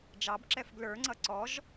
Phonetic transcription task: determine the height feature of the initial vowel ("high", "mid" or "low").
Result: low